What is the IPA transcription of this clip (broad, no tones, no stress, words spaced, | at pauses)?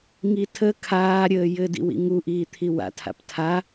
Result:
ŋitʰə kʰaːɾʲəːjɘdḭw ḭŋu ʔiːt̪ʰiwa̰tʰa̰p tʰa